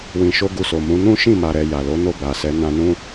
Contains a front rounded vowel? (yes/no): no